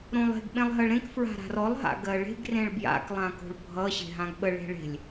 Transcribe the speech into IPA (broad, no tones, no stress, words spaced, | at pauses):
ɾõlˠe̤ɡ ɓẽlˠɦɜɭɾẽk fɹa̤ɾa̤rɔlˠ ɦa̰ɡɜɭe̤ɡ rẽɭbja̰k lˠãko̤ɭbʱʌ ɕe̤ɦãɡɓə ɭe̤ɭe̤lʲ